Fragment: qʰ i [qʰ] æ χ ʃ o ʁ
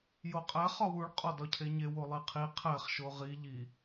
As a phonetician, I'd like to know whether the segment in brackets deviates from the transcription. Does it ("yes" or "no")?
no